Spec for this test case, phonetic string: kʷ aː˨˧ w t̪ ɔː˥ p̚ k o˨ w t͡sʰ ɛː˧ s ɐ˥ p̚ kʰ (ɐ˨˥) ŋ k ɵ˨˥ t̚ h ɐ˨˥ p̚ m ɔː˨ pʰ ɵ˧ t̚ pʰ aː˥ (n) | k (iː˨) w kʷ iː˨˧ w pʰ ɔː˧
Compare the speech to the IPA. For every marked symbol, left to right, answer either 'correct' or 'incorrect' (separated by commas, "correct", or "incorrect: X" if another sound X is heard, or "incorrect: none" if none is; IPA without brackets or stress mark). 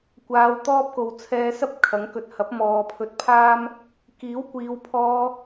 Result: correct, incorrect: m, incorrect: iː˨˥